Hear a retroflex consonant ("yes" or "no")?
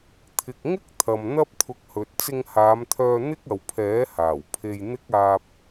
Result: no